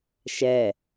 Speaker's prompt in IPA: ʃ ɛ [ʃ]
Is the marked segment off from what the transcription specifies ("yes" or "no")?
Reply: yes